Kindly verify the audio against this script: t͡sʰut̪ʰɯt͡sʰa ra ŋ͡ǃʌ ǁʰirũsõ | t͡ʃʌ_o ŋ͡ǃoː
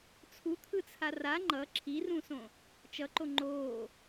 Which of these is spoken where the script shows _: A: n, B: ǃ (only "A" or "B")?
B